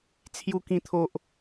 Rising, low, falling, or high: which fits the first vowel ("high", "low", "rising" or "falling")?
low